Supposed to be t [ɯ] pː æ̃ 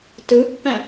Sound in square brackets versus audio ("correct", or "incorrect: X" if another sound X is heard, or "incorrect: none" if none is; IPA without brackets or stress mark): correct